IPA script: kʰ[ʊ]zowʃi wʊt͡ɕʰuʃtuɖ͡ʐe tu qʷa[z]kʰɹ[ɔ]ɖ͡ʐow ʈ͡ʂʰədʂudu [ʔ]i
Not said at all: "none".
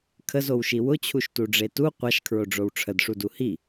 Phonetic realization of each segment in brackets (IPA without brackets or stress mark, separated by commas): ə, ʃ, o, h